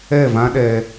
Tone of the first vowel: falling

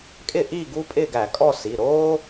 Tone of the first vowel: falling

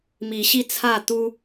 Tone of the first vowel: rising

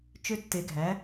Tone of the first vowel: high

